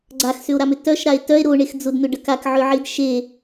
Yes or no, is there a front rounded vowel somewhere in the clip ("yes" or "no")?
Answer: yes